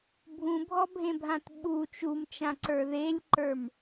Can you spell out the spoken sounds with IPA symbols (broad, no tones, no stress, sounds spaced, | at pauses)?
bʱ ũ bʱ ɔ bʱ ẽ bʱ ã t ɓ u t͡ʃ u m t͡ʃ ã ǀ ə˞ ð e lʲ ǃ ə˞ m